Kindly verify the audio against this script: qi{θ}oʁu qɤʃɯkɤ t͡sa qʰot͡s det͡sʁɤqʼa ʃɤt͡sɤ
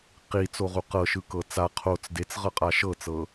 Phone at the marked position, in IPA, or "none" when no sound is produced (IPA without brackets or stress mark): t͡s